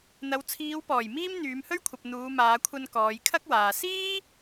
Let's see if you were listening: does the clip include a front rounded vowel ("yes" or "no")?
yes